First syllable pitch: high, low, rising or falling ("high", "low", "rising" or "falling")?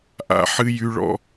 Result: high